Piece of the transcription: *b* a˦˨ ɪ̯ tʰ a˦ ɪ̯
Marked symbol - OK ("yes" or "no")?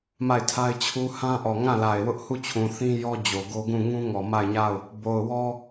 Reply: no